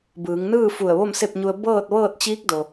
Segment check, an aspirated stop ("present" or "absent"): absent